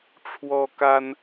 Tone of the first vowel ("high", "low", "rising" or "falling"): high